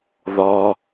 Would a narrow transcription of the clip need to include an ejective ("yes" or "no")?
no